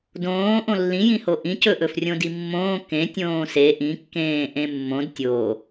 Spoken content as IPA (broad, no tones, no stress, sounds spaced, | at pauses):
d õː ʔ õ lː ĩ j ĩ h o ʔ ĩ c ɵ ʔ ɵ f rʲ õ d i mː õː k ẽ tʲ õː s e ʔ ĩ kː ẽː ʔ ẽ mː õ d tʲ o